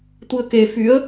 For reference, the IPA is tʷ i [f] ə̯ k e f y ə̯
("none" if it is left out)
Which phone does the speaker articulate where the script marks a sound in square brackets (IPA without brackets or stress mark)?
none